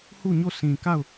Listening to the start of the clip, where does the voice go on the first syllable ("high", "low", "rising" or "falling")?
falling